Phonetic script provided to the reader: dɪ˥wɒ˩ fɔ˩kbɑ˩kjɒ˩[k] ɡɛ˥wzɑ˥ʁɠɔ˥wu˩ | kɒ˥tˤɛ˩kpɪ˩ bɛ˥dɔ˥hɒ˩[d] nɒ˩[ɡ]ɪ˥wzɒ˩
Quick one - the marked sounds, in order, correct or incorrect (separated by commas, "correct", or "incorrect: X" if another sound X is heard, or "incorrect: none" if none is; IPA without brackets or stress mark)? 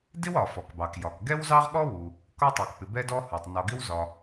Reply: correct, incorrect: tˤ, correct